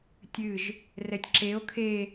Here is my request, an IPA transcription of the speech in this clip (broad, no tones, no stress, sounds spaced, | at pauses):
tʲ ɨ ʒ | r ɛ tʲ ǁ e o̯ kʰ e